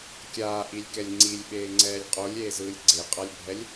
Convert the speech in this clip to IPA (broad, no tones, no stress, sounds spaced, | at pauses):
kʲ aː ʔ i lʲ k ɛ lʲ ŋ͡ǀ i lʲ ɓ eː ŋ͡ǀ ɛː lʲ qʼ o lʲ eː z ɯː lʲ ɡ͡ǀ e qʼ a lʲ bʱ ɛ lʲ